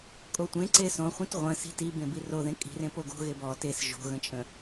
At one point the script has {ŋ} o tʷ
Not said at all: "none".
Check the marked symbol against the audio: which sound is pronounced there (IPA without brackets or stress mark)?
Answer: kʼ